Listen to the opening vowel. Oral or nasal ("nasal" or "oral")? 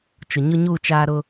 oral